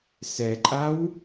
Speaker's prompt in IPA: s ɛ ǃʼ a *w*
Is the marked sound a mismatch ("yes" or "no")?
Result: no